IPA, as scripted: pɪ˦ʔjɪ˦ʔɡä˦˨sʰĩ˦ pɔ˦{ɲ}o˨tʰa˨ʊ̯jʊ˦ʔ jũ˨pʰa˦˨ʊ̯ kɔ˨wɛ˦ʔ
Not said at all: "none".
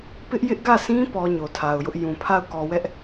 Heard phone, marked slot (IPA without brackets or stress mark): ɲ